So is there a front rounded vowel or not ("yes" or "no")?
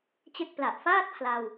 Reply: no